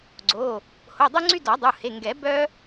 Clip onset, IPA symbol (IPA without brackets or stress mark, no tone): ɡ͡ǀ